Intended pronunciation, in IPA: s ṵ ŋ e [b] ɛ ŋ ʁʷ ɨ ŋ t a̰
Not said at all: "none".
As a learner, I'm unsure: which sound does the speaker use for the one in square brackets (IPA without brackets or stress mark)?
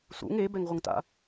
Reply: b